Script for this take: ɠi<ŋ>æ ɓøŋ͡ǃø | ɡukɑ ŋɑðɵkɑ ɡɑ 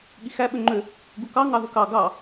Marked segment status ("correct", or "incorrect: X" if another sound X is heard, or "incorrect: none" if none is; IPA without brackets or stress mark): incorrect: x